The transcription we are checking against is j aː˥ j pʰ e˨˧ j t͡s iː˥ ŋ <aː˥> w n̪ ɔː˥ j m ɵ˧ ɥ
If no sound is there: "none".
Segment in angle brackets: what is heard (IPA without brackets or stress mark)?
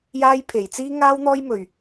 aː˥